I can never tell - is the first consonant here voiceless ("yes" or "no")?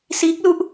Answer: yes